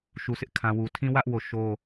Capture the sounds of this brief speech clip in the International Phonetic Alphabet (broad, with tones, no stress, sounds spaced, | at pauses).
ʃ u˨ sʰ ɪ˦ ʔ kʰ ã˨ w u˨ tʰ ĩ˦ w ä˦ ʔ w o˦˨ ʃ o˦